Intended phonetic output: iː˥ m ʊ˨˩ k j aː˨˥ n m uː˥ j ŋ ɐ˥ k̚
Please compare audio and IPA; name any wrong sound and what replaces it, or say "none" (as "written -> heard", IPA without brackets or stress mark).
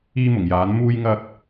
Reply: k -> ŋ